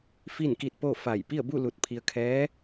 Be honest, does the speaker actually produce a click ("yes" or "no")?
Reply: no